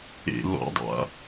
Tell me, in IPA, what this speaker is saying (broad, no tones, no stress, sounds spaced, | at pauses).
ḛ l ɔ̰ dˤ a̰